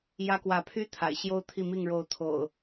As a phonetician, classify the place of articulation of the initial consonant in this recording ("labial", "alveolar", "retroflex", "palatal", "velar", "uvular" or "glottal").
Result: palatal